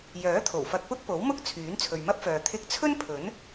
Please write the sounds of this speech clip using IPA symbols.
j œː˨˥ t̪ʰ o˨˩ w f ɐ˧ k̚ p ʊ˥ k̚ p o˨˥ w m ʊ˥ k̚ t͡sʰ yː˨˥ n t͡sʰ ɵ˨ ɥ m ɐ˥ p̚ f œː˨ t̪ʰ ɪ˧ k̚ t͡sʰ ɵ˥ n pʰ ɵ˨˥ n

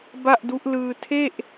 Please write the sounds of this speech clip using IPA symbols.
b a˥˩ ʔ d u˦˥ ʔ l ɯː˧ tʰ e˥˩ ʔ

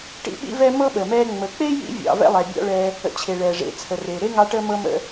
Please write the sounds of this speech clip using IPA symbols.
ʈ ḭ˦ ɓ ḭ˦ v ɛ˦ m ɤ˥ ɓ əː˩ m ɛː˦ ŋ͡m ə˨ k͡p e˥ j ḭ˦ vʲ ɑ̰˨ v ɛ̰˥ lˠ ɛ˨ bʲ ɑ̰˥ ɭ ɛː˦ | ə̰˨ t͡ɕʰ e˩ ɭ ɛː˩ ʐ ḛ˨ t͡sʰ ə˩ r e˩ ɾ e˥ ŋ ɑ˦ ʈ əː˦ m ɤ˦ m ə̰˦

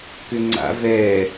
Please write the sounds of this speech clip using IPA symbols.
k ʏ ŋ͡ǀ a̰ v ɛ

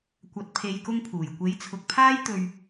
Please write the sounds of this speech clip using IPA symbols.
kʷ ɐ˨ t̚ pʰ e˨ j k ʊ˥ ŋ pʰ uː˨˩ j kʷ e˨˥ j t͡sʰ ʊ˨ k̚ pʰ aː˥ j t̪ ɵ˧ ɥ

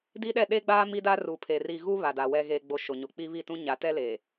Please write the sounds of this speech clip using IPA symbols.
d i˦ ɗ ɛ˦˨ ɗ e˦ ɡ͡b aː˦ m i˦ d a˦ r uː˨ pʰ e˨ r i˨ ɣ u˦ β a˨ d a˨ w ɛ˨ ɣ eː˨ ɡ͡b o˨ ʃ o˨ ɲ o˨ k͡p iː˦ β i˦˨ t ũ˦ ɲ a˨˦ t ɛ˦ l eː˨

